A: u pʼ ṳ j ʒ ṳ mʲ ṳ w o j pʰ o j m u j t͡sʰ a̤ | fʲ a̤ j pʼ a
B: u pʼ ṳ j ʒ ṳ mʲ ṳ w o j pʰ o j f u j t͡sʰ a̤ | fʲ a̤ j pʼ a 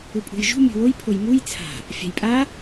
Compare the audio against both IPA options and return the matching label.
A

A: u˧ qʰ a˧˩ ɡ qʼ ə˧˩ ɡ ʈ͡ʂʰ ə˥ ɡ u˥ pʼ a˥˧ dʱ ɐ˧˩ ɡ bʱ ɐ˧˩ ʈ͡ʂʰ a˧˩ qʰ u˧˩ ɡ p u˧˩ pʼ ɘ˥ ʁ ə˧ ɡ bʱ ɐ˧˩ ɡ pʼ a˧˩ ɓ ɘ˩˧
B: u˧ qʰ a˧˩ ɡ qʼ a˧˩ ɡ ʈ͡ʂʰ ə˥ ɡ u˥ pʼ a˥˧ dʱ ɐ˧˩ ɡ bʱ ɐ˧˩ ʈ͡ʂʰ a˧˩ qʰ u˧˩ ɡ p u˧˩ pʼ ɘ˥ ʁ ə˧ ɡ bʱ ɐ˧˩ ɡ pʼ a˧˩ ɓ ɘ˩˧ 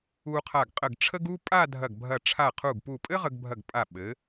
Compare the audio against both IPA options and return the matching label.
A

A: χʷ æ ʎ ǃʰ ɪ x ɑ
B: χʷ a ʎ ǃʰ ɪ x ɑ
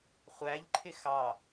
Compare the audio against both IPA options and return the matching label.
A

